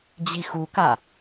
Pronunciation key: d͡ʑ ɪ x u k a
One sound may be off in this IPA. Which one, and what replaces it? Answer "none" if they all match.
ɪ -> i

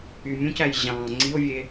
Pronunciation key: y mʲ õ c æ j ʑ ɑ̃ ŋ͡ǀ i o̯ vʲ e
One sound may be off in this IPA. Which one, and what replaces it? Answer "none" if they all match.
none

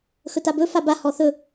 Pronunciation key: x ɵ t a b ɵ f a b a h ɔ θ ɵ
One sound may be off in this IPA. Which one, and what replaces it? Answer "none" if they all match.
none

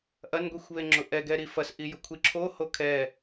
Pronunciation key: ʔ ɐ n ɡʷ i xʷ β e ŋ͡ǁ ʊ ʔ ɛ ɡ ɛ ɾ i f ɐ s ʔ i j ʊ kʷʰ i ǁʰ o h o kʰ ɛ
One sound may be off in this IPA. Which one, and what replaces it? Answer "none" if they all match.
none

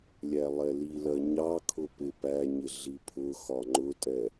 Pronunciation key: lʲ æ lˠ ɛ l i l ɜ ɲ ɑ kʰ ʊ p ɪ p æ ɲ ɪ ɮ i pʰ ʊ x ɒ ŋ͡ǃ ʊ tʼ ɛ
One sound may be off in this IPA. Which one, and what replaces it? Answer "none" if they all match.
none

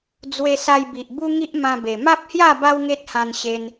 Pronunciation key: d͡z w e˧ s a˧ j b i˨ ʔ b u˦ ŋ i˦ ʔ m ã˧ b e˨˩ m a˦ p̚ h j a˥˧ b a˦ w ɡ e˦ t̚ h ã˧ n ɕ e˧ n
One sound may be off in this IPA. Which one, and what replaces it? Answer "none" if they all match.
ɡ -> ŋ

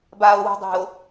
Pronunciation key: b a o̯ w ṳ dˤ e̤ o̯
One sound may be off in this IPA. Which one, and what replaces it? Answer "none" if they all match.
none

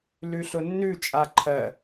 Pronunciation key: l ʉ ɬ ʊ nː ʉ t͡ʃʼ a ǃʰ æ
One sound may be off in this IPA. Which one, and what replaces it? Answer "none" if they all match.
æ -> ɜ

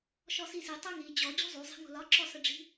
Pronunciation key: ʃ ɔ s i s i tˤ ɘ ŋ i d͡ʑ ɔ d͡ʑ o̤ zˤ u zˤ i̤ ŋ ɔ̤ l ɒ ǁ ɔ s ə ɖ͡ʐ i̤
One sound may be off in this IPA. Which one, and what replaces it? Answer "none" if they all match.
ɔ̤ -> o̤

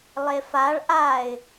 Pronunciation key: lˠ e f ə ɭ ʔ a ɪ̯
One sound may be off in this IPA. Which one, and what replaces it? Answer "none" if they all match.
ə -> a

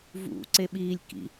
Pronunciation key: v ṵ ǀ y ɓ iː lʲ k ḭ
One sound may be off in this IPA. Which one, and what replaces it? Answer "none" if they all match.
y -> e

